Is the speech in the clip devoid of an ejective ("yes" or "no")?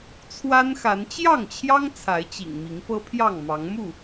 yes